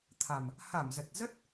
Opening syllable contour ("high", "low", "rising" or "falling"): low